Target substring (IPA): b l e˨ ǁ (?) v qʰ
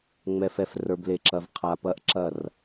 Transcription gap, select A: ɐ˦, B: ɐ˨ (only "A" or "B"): B